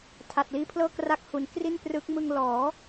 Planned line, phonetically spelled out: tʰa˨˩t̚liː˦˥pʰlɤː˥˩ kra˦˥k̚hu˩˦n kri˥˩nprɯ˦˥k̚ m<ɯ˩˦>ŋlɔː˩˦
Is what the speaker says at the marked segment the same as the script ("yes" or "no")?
no